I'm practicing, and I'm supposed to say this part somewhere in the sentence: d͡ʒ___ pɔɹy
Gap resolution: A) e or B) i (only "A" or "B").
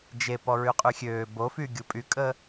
A